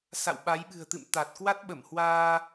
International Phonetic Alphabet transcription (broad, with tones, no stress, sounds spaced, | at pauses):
s a̰˧˨ w ɓ a˨˦ j ɓ ɨ̤˨˩ ə̯ t̪ ɨ̰˧˨ m t̪ a˨˩ t̚ k w a˦˥ t̚ ɓ ə˧˩ m h w aː˧